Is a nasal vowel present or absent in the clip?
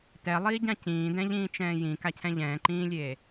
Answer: present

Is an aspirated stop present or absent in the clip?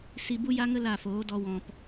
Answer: absent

